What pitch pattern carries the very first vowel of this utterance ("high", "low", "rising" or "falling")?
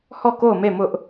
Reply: falling